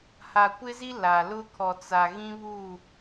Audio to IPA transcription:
ha˨kʷɪ˦zi˦ la˨ lʊ˦kʰɔ˨t͡sa˨ ɣĩ˦βu˦˨

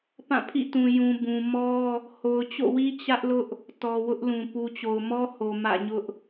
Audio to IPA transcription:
pã˦˨pʰḭ˦˨tũ˨ jũ˨bũ˨mɔ˦ | ho˨ʊ̯t͡ɕo̰˦˨wi˦ t͡ɕä˦ʔlʊ˦ʔ | tɔ˨ wʊ˦ʔlũ˨ pu˨t͡ɕo˨ʊ̯ mɔ˦ho˨ mä̰˦˨ɲʊ˦ʔ

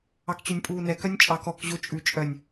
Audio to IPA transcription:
ɑkt͡ɕønʲpʼuːnɛ kœnʲt͡ʃʼɑk ɔk ʑot͡ʃʼʉ t͡ʃʼœnʲ

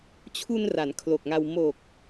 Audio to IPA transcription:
t͡ɕʰu˧n ra˩˦nkʰlo˨˩k̚ŋa˧w mo˨˩k̚

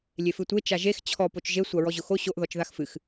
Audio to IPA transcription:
lʲefɨtʷe t͡ʃaʒex t͡ɕʰɔ pot͡ʃʒe sʷaɹɔʑʊxo ɕoʔ ðɔt͡ʃðaxfɨx

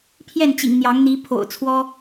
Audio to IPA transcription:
pʰjɛ˥˨nt͡ɕḭ˨˩ŋ n̪jɑ˨˦ŋn̪i˨˦ pʰo̰˨˩ʊ̯ t͡sʰwɔ˦

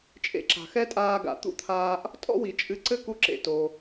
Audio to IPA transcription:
t͡ʃʼḛ˧ǁa̤˩xɛ˥tʼaː˧ ɡa̰˩t̪ṵ˥t̪ʰaː˧ʔ | tʼɔ̰˥wi˩t͡ʃʼɨ˧ ǀɘ˥ku˧ǁḛ˩to˩

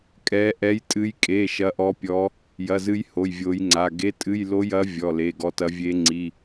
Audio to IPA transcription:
kʼɛ˨˦ ʔɛ˨˦jtʼɨ˨˦jkʼe˩˧˩ ʃɐ˨˦ʔɔ˨˦pʲɔ˨˦ | jɐ˩˧˩zɨ˨˦j ho˩˧˩jvʲo˨˦jŋ͡ǀa˩˧˩ ɡe˩˧˩tʼɨ˩˧˩jlo˨˦jɐ˨˦ vʲɔ˩˧˩le˩˧˩ɡɔ˨˦tɐ˨˦ vʲe˨˦ŋ͡ǀi˩˧˩

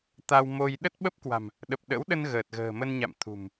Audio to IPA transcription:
t̪a˧wmo˧j ɗə˦˥t̚ɓə˦˥p̚kwa̤˨˩m | ɗə˨˩p̚ɗə̰˧˥wɗə˧n ɣəː˨˩t̚ɣə̤ː˨˩mə˧nɲa̰˧˨m t̪ʰṳ˨˩m

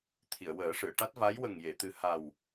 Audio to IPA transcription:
t̪ʰi˨˩˨ə̯wəː˨˩˦ʂɨ˨˩˨ə̯ ʈa˦˥t̚va˧˥j wə˨˩ŋje˨˩˨t̪ɨ˨˩ ha˨˩w

